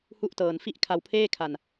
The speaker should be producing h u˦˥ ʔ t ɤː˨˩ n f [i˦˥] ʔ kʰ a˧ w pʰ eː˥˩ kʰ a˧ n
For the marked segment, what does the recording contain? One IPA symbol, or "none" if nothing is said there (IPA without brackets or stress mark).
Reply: i˦˥